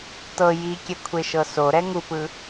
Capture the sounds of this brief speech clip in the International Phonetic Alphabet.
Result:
t ɤ j i kʲ ɛ kʷʰ e ʃ ɤ s o ɾ ɛ ŋ u p ɯ

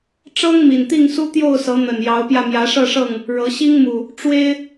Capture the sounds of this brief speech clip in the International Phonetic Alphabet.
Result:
ʈ͡ʂ ɤ˦ ŋ m i˨˩ n t̪ i˥˨ ŋ s u˦ t̪ j o˥˨ ʊ̯ s ɤ˨˦ n̪ ə˨˩ n j ɑ˨˦ ʊ̯ p j ä˧ m j ä˨˦ ʂ ɤ˥˨ ʂ ɤ˥˨ ŋ | ɻ ɤ˨˦ ɕ i˦ ŋ m u˨˩ | ʈ͡ʂ w e˦ ɪ̯

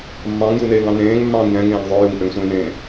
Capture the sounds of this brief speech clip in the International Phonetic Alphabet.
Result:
mː ɑ̃ː ŋ j u n eː ŋ ɑ̃ n ẽː ŋ mː ɑ̃ː ŋ j ɛ̃ ŋ ẽː ŋ ðˤ o j u ŋ ʔ ø ŋ sʷ ẽː n ẽː

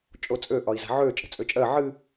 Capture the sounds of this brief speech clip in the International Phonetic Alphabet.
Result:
t͡ʃʼ o t͡sʼ ø ʔ ɒ i̯ z a̤ ʕ ø t͡ʃʼ ə̤ t͡sʼ ø t͡ʃʼ ɜ ʕ ɨ

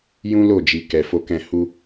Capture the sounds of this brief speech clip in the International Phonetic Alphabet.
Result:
j ũ˦ l o˦˨ d͡ʒ i˨ k ɛ˨ f o˧ k ɛ̃˧ h u˧

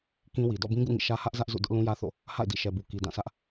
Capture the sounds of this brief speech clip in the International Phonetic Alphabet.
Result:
k ĩ˦ w i˨ d ɔ̰˦˨ b ĩ˦ ɡ ṵ˦˨ ŋ ḭ˦˨ ʃ ä˦ h ä˦ ʔ z ä˦ ʔ z ṵ˦˨ d ʊ˦ ʔ l ũ˦ j ä˦ θ o̰˦˨ | h a̰˦˨ ɪ̯ d ḭ˦˨ ʃ ɛ˨ b u˨ k i˨ d ã˦˨ s ä˦ ʔ

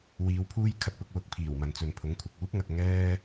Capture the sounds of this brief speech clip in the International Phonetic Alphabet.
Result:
w iː˨˧ w pʰ uː˥ j kʰ ɐ˧ t̚ p ʊ˧ k̚ w ʊ˨˥ k̚ pʰ iː˨˩ w m ɐ˨ n t͡s ɵ˨ n pʰ ʊ˨˥ ŋ kʷʰ ɐ˨ k̚ uː˥ p̚ ŋ ɐ˨ t̚ ŋ ɛː˥

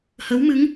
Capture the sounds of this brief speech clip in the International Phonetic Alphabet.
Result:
h ə˨˦ w m ɨ˨˦ ŋ

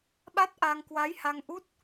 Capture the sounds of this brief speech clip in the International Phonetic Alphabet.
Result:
ɓ a˦˥ t̚ ʔ a˧ ŋ k w a˨˦ j h a˧ ŋ ʔ u˦˥ t̚

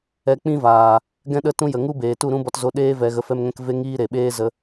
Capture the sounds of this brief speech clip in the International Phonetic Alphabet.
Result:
ɛ˧ k͡p ĩ˦ v aː˨ | ɡ ɛ̃˦ ɗ ə˦ t ũ˦ j ə˨ ŋ u˦ b eː˨ t u˦˨ ɾ ũ˦ b ɔ˧ t z o˧ ɗ eː˦ v ɛ˧ ɣ ə˧ f ɛ˦ m ŋ ɛ̃˦ k v e˦ ŋ iː˦ ɾ e˨ ɓ eː˦ z ə˧

